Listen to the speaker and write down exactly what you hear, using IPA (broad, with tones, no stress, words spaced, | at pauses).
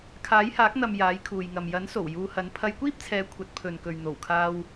kʰaː˨˥jhaː˨˥k̚n̪ɐ˨m jaː˨˥jkʰuː˨jŋɐ˨m jɐ˨˥nso˨˩w juː˧hɐ˨˥n pʰɐ˧jkʷiː˥p̚t͡sʰɛː˨˧ kʷʰɐ˨˥t̚pʰɵ˨nkɵ˨ɥ n̪o˨˩wkʰaː˧w